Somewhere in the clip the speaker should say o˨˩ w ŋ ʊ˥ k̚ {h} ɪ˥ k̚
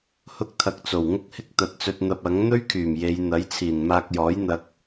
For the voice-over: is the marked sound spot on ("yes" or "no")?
yes